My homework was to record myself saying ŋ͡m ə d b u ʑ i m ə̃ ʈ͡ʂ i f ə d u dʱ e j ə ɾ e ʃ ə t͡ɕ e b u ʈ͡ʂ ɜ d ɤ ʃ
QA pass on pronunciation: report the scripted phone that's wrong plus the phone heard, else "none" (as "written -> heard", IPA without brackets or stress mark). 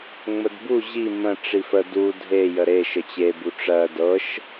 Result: none